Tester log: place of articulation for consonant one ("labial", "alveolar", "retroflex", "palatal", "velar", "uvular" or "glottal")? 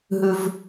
glottal